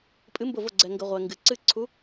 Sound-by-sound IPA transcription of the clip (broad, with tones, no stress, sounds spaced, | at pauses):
pʼ ɨ˨˦ m b ʊ˧˩ v ʊ˧˩ ɡ͡ǀ ɛ˩ ŋ ɡ ə˩ ʁʷ ɛ˩ ŋ ɡ ɨ˩ ǀ ɨ˧˩ ǀʰ u˨˦